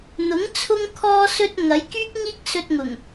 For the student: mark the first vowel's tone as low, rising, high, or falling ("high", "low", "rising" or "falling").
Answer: rising